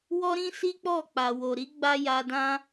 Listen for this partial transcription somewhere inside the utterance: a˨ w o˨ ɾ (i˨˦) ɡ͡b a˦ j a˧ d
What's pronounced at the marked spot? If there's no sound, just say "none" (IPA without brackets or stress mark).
i˨˦